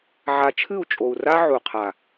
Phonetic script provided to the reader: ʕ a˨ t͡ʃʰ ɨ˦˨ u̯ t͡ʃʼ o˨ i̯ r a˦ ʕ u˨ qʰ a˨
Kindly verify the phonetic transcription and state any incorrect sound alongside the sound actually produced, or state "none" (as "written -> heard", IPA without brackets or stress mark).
i̯ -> u̯